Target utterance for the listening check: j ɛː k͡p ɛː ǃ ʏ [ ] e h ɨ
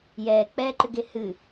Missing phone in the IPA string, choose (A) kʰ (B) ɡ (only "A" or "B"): B